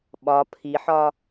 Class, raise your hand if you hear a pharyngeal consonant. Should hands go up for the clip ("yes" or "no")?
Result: yes